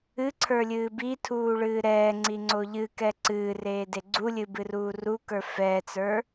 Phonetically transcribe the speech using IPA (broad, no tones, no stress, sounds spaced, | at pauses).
ɨ ǀʰ ə˞ lʲ ɨː b i tʰ uː ɭ ɨː ɾ ɛː ŋ͡ǀ i ŋ͡ǀ o ʎ ɨ k ɛ ǀ ɨː r eː d e ɡ͡ǀ u lʲ ɨ b ɨ r uː r u k ə˞ f ɛ t͡s ə˞